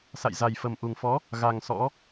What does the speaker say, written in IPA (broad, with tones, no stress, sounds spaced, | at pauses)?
s a̰˧˨ j z a˨˩ j f ə˨˩ m ʔ u˨˩ ŋ f ɔ˨˦ | ɣ a˨˩ ŋ s ɔ̰˧˥